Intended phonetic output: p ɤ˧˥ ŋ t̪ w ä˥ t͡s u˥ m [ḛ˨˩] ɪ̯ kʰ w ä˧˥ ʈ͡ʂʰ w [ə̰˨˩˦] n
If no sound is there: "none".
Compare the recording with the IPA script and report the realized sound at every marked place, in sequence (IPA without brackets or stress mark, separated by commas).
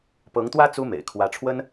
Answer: ḛ˨˩, ə˥